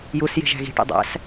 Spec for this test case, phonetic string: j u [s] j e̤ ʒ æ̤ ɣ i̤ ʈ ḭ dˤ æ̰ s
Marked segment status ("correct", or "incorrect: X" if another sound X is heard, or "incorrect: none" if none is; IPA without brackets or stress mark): correct